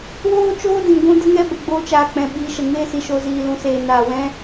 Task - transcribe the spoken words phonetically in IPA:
w oː˦ t͡ʃ oː˦ d ĩ˨ ɡʷ ũ˦ d ə˦ ŋ ɛ˦ b ə˨ ɡ͡b oː˦ t͡ʃ aː˧ k͡p ɛ̃˧ ɓ iː˨ ʃ ə˨ ŋ eː˦ s i˨ ʃ o˧ z iː˧ l ũ˧ s eː˧ n aː˨ w ɛ̃˦

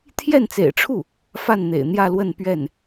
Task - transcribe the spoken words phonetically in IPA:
t̪ʰ j ɛ˥˩ n t͡s ḛ˨˩ ɪ̯ ʈ͡ʂʰ u˥˩ | f a˥˩ n n̪ ḛ˨˩ ɪ̯ n̪ j ä˥˧ l w ə˥˧ n p ɥ ɛ˥˩ n

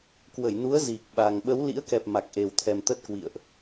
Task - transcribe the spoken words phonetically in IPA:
k w ə˧˩ j n u˨˦ ə̯ z i˨˩ k̚ ɓ a˨˩ ŋ ɓ ə˨˦ w l ḭ˧˥ ə̯ k ɛ˨˩ p̚ m a˨˩ k̚ ʔ e˨˩ w t̪ʰ ɛ˨˩ m t̪ ə˦˥ t̚ k w ḭ˧˨ ə̯ ʔ

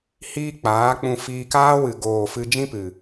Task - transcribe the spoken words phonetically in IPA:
h iː˧ k͡p aː˨˦ k͡p ũ˧ f iː˧ k aː˦ w ɨ˨ ɡ oː˨ f ɨ˧ d͡ʒ ĩ˦ p ɨ˨

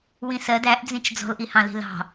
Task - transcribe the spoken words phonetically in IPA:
w ĩ s ɜ d æ ʔ d͡z ĩ t͡ʃ d͡z ɔ̤ l ʔ i h ɑ̃ l i̤ l ɑ̤

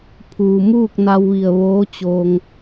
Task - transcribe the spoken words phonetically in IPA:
pʰ uː˩ m uː˥˨ k̚ n a˧ w ʋ i˧˩ ə̯ ʋ oː˧˥ t͡ɕ oː˧ ŋ

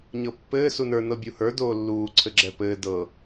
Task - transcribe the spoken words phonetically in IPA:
ɲ ɤ pː ɘː s u n ə˞ n ɤ bʲ u h ə˞ d oː lː uː ǀʰ ɘ ɡ͡ǁ ɛ p ɘː d ɤ

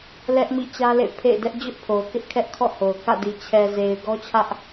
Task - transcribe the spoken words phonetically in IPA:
l ɛ˦ ʔ m ḭ˦˨ t͡ɕ ä˦ l ḛ˦˨ pʰ ḛ˦˨ ɪ̯ d ɛ˦ ʔ d͡ʑ ʊ˦ ʔ pʰ o˨ ʊ̯ k ɪ˦ ʔ kʰ ɛ˦ ʔ kʰ ɔ̰˦˨ h o˨ ʊ̯ k ä̰˦˨ d i˨ t͡ɕʰ ɛ˨ z e˨ ɪ̯ ɡ ɔ˦ t͡ɕʰ ä˦ ʔ

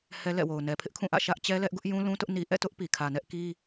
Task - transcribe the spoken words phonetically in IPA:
h ɛ˦ l ɛ̰˦˨ w o˨ ʊ̯ n ɛ˨ pʰ ɪ˦ ʔ kʰ ũ˦˨ ʔ ä̰˦˨ ʃ ä˦ ʔ t͡ɕ ɛ˦ l ɛ˦ ʔ ɡ ʊ˦ ʔ j ũ˦ l ũ˦ t ʊ˦ ʔ n i˨ ʔ ɛ̰˦˨ t ʊ˦ ʔ p i˨ kʰ ä˨ n ɛ˦ ʔ k i˦

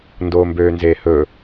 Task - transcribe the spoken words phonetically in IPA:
n d oː m b øː n z eː h ɵ

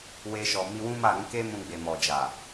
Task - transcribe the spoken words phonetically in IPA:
w e˧ ʃ ɔ˨ m i˧ w ũ˦ m a˦˨ ɾ ũ˨˦ k e˦ m ũ˧ ɡ͡b e˨ m ɔ˨ d͡ʒ a˨

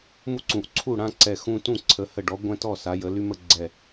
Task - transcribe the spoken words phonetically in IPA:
m u˦ ǀ ũ˨˦ ʔ ǀʰ u˥˨ ɽ ã˦ ǀ ɛ˧˩ x ũ˦ t ũ˥˨ ǀʰ ə˨˦ h ə˧˩ ɖ ɔ˨˦ ɡʷ ɛ̃˦ t ɔ˥˨ s a˨˦ j ə˨˦ l y˦ m ə˥˨ ɡ͡ǀ ɛ˧˩

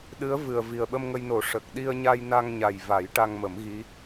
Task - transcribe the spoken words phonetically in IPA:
ɗ ɨ˧˥ ə̯ v ɨ˨˩ ə̯ v i˨˩ ə̯ ɓ ə˧ m ŋ ə˧ j n o˨˩˦ ʂ ə˨˩ k̚ ɗ i˧ ə̯ ɲ a˧ j n a˧ ŋ ɲ a˨˩ j v a˨˩˦ j ʈ a˧ ŋ m ə˨˩˦ m ɣ i˧˥

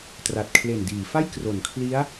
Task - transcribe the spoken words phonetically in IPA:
t r a˨˩ t̚ kʰ l e˨˩ n d iː˩˦ f a˥˩ j k r o˩˦ n kʰ l i˦˥ a̯

